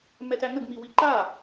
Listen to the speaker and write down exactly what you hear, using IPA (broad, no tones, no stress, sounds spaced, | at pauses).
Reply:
m ɛ t æ ŋ ə ɡ m i w i ǃ a